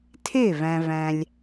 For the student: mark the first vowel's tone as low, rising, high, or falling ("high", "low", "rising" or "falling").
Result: falling